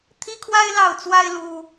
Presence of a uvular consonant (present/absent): absent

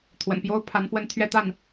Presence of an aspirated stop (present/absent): present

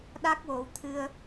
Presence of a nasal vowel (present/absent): absent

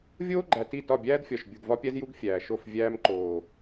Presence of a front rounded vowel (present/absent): absent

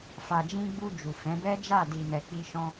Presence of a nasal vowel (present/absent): present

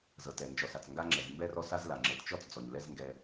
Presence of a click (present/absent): present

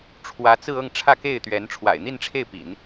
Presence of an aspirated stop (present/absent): present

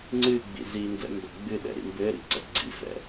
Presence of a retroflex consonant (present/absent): absent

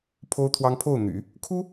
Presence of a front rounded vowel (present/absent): present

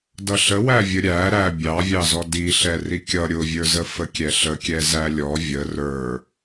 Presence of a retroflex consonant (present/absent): absent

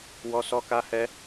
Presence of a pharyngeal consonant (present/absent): absent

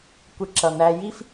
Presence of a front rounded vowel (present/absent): absent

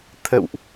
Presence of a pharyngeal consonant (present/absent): absent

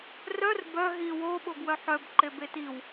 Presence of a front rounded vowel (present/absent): present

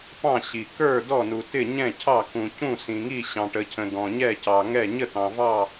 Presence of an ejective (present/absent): absent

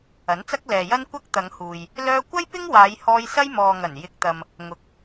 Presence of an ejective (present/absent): absent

